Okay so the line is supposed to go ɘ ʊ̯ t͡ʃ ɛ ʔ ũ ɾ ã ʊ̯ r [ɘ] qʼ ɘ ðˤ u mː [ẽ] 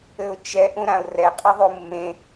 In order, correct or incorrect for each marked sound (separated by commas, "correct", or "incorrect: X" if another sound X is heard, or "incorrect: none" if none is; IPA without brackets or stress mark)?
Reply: incorrect: ɛ, correct